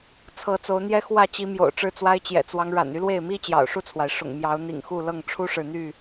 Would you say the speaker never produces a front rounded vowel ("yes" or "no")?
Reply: no